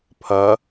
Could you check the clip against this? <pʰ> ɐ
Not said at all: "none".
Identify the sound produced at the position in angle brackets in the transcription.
pʰ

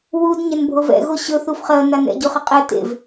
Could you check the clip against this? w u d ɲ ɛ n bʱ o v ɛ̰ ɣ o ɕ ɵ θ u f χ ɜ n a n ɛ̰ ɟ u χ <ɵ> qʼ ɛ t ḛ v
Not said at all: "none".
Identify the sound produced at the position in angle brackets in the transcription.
ə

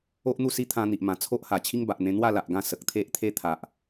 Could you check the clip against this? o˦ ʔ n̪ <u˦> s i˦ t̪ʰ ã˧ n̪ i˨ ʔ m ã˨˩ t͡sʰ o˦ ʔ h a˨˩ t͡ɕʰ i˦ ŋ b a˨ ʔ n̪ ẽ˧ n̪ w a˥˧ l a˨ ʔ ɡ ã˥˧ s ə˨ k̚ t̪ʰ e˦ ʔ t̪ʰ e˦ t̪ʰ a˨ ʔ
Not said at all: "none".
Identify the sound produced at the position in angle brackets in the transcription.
u˥˧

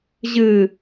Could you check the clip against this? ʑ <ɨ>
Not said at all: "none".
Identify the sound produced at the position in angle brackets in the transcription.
ɨ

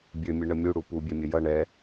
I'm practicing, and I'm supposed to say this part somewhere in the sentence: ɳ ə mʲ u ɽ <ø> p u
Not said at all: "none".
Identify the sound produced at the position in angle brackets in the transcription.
u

